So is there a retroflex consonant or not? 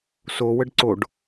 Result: yes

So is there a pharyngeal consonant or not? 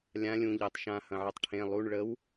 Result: yes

